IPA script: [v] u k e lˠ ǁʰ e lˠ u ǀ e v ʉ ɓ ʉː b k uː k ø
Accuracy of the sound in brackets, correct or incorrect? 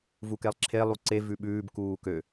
correct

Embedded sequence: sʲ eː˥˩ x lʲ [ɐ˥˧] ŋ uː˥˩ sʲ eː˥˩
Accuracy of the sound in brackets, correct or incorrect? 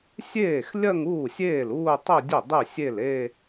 correct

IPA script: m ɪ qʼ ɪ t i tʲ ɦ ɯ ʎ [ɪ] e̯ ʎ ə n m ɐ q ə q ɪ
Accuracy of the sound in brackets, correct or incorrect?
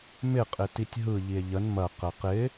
incorrect: i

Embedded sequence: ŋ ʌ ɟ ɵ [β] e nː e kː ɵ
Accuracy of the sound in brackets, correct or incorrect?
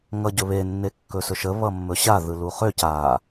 correct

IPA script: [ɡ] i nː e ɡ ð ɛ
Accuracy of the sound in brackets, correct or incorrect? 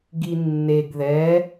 correct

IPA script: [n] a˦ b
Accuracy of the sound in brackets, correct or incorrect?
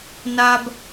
correct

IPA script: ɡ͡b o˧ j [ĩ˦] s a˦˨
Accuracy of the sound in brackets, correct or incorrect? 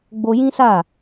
correct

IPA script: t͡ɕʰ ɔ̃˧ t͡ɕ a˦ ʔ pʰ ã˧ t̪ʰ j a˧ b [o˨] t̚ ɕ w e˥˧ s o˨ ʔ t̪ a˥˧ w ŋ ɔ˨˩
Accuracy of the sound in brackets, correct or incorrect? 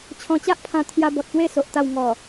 incorrect: ɔ˨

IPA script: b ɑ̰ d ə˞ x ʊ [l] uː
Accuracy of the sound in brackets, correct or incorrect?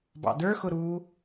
incorrect: ɾ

